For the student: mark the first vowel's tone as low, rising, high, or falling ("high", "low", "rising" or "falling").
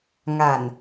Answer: low